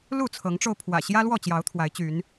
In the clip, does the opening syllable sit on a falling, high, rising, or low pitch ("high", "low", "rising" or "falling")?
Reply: falling